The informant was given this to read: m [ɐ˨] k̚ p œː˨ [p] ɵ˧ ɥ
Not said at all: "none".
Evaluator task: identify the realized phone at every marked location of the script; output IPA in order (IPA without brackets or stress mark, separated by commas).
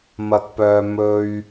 ɐ˨, m